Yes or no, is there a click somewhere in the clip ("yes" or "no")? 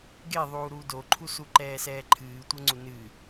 yes